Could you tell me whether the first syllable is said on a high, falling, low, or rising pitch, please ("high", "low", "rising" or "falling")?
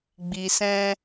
low